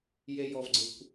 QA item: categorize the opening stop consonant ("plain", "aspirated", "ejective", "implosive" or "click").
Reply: click